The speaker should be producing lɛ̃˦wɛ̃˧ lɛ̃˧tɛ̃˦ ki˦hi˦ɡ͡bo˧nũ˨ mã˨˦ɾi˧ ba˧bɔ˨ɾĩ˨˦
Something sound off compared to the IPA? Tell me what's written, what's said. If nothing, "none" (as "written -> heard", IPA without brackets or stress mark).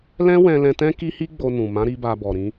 none